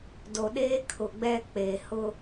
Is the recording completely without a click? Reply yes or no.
yes